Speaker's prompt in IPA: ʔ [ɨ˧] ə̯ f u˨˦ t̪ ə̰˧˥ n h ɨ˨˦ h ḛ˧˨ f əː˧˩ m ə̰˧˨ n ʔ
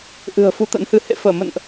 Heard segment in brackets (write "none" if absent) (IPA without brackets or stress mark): ɨ̤˨˩